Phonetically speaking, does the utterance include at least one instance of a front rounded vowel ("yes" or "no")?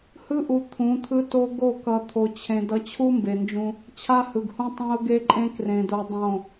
no